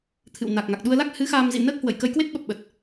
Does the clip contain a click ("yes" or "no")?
no